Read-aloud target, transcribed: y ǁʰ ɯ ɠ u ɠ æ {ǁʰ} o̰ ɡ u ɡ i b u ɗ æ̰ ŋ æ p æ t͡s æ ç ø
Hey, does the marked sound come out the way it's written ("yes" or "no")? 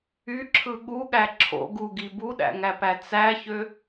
yes